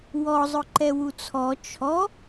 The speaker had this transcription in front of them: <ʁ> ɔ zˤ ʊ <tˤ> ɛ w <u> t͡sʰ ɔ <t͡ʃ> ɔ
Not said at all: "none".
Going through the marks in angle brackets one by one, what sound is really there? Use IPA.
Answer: w, ǃ, u, t͡ʃʰ

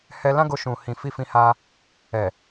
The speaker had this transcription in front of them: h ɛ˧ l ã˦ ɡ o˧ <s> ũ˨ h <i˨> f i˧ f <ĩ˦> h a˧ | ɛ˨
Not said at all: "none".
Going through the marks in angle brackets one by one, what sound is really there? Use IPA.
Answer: ʃ, ĩ˨, ĩ˧

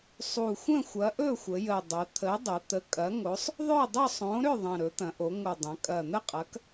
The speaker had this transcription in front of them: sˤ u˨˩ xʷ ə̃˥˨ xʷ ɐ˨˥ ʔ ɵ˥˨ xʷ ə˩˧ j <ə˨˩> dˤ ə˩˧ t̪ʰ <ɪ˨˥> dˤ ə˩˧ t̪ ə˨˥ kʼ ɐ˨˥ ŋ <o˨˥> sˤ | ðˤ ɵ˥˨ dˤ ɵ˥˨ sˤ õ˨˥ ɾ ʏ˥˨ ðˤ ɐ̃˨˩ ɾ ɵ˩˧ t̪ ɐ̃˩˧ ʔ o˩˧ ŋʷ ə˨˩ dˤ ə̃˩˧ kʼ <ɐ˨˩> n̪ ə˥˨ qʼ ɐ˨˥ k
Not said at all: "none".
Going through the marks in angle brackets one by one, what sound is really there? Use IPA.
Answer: ə˨˩, ə˨˥, o˨˥, ɐ˨˩

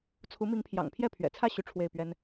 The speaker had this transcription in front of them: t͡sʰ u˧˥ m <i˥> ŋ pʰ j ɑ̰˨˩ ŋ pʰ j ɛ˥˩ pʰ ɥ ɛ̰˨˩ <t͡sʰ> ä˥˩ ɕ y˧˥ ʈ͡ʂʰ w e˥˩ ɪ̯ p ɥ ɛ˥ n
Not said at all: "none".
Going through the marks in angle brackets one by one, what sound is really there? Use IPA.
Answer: i˧˥, t͡sʰ

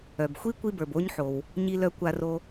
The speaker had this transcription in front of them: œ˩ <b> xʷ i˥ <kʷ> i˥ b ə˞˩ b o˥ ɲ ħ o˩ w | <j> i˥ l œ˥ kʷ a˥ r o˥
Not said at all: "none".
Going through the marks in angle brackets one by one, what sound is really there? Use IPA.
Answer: b, kʷ, ɲ

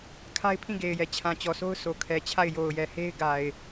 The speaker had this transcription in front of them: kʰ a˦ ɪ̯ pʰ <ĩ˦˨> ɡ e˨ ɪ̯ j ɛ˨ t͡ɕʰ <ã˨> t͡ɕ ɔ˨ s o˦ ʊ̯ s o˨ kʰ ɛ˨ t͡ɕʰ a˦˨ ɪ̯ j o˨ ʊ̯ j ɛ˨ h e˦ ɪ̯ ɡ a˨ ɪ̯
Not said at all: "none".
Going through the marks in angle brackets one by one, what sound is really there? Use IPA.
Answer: ĩ˦˨, ã˨

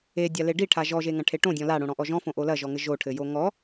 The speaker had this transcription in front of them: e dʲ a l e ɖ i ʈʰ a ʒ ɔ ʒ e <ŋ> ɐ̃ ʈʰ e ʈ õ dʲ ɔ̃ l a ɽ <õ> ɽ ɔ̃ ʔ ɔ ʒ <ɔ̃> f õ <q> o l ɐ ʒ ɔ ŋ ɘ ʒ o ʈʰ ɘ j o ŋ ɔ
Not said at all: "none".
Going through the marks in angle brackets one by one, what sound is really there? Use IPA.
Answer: ŋ, õ, ɔ̃, ʔ

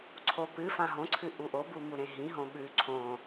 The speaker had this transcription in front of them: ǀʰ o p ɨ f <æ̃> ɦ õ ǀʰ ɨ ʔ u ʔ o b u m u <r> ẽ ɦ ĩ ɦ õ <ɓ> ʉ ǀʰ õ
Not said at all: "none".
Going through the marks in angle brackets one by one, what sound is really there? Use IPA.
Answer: ã, ɾ, ɓ

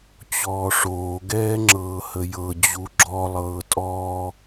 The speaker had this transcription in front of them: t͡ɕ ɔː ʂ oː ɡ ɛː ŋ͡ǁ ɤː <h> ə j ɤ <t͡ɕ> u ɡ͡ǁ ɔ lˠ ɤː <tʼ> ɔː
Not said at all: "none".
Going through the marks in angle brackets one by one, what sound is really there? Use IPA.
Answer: h, d͡ʑ, tʼ

